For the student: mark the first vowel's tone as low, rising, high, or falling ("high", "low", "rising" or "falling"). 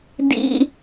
high